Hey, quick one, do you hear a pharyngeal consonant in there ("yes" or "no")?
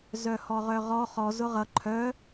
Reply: no